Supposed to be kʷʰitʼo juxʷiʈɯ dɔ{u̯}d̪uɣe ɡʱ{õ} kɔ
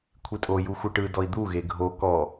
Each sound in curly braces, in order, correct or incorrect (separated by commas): incorrect, incorrect